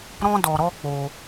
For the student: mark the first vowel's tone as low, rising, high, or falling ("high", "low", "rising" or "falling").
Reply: high